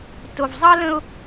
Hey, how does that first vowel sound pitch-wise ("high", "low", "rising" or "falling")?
low